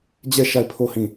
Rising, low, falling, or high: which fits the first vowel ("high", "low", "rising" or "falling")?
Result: falling